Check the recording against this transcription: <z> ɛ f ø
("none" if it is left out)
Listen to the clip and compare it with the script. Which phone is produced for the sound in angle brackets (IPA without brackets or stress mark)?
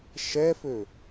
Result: ʃ